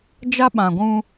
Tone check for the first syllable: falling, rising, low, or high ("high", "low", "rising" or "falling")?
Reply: high